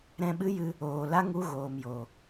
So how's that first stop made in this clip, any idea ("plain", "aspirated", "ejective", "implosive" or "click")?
implosive